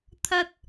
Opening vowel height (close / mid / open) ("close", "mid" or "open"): open